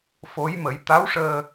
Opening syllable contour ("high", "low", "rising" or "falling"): rising